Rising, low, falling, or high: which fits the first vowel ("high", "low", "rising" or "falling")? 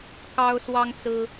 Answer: high